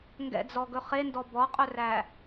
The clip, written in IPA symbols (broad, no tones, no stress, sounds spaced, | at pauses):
ŋ ɡ ɛ̰ d͡z ɔ ɡ ɵ χ e n d ɔ b ɔ qʼ ɵ r æ